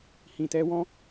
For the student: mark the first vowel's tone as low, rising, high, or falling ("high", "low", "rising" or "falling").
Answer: low